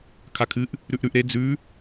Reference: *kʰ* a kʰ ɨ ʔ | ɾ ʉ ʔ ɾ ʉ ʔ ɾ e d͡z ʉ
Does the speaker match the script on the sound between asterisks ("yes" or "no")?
yes